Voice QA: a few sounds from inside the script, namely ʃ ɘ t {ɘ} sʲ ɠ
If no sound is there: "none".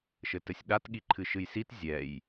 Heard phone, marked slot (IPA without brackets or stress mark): ɘ